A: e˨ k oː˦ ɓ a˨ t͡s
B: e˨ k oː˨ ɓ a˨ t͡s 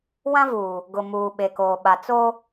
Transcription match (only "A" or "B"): B